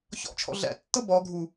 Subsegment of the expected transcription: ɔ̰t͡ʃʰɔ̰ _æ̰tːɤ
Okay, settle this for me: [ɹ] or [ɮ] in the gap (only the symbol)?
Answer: ɮ